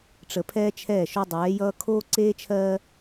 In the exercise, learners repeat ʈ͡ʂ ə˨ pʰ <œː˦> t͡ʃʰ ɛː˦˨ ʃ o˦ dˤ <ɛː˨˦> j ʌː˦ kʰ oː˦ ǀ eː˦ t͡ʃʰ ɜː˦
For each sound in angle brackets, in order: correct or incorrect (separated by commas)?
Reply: incorrect, correct